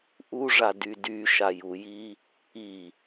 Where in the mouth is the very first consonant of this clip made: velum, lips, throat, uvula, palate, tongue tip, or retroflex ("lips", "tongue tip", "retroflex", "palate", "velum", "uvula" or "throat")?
throat